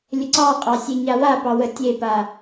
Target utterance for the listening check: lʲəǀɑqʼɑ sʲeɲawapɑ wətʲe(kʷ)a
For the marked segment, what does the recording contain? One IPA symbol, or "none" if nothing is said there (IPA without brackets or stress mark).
p